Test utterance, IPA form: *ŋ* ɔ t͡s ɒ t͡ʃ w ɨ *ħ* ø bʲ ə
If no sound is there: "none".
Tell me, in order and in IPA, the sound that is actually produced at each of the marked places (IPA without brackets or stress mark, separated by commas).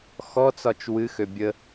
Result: x, x